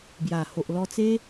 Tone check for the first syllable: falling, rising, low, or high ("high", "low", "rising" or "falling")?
low